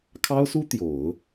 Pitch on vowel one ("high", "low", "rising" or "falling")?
high